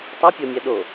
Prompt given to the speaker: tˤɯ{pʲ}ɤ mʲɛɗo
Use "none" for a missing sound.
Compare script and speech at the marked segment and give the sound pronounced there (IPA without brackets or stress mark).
pʲ